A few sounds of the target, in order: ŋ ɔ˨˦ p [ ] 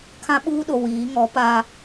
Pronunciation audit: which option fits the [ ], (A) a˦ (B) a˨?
A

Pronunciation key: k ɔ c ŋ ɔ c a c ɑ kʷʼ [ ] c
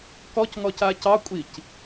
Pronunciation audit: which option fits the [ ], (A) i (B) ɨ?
A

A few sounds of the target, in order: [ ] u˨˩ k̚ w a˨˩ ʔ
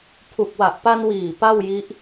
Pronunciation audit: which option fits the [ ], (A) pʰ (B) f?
A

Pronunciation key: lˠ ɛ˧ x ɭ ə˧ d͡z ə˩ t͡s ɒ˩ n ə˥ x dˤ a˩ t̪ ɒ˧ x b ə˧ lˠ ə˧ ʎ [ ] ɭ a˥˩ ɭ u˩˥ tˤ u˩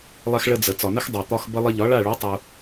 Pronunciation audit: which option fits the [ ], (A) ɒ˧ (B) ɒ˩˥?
B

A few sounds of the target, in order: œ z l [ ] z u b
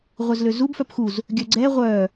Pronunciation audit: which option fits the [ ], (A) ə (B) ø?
B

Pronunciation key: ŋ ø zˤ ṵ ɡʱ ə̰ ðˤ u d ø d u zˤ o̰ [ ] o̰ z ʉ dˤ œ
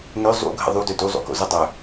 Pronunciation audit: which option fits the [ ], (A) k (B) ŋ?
A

